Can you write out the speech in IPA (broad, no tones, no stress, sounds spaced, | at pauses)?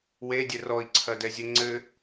w e dʲ ɘ r ɔ i̯ ǀʰ ɐ d ɛ zʲ ɘ ŋ͡ǀ ɘ